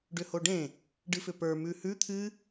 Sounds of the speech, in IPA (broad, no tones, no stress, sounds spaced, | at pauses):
ɖ ʏ h o ɖ ẽ | ɖ ɨ f ʏ p ə˞ m ʉ h ʉ t̪ʰ ɨ